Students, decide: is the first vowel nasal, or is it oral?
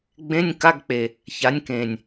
nasal